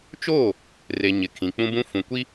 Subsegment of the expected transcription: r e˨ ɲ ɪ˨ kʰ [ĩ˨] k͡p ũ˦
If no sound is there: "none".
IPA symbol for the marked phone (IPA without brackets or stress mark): ĩ˨